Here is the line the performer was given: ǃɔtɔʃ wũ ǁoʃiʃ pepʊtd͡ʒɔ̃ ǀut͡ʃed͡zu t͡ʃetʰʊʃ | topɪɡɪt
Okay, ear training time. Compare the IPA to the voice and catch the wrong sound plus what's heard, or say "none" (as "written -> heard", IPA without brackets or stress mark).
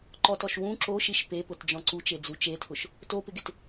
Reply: none